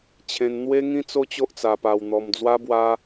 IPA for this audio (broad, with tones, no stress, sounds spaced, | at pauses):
t͡ɕʰ ẽ˧ n n̪ w e˦ ŋ ĩ˦ t͡s o˦ t͡ɕ o˦ ʔ t͡s a˧ p a˧ w n̪ ɔ˧ m d͡z w a˦ b w a˦